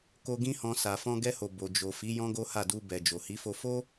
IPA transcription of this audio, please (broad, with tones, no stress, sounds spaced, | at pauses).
k o˧ ɡ ĩ˦ h ɔ̃˧ s a˨ f ɔ̃˧ ɡ ɛ˧ h o˨ b o˨ d͡ʒ o˨ f i˨˦ j ɔ̃˦ ɡ o˦ h a˦˨ d u˧ b ɛ˨ d͡ʒ o˨ h i˨˦ f o˧ f o˦